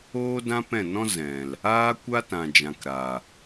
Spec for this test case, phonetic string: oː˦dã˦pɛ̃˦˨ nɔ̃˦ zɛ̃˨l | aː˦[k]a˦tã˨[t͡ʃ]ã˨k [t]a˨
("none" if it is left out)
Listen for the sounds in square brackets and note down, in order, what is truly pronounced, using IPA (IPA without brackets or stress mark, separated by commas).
kʷ, d͡ʒ, ɾ